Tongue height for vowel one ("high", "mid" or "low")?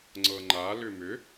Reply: mid